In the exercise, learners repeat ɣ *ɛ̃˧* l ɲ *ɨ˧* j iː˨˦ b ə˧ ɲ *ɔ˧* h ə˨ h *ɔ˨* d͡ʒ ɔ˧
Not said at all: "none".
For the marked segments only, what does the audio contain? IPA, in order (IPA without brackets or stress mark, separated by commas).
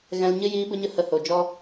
ɛ̃˧, ɨ˧, ə˧, o˨